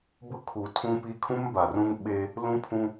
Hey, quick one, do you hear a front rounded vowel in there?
no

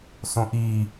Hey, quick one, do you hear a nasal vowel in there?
yes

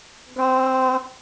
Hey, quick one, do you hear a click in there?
no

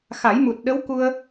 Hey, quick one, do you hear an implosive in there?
yes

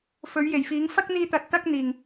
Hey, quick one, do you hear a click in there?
no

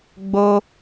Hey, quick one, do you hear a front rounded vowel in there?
no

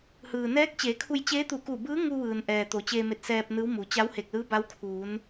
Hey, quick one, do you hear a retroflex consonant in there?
no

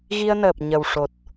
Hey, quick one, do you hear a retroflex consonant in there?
yes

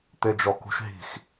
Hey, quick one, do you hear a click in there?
no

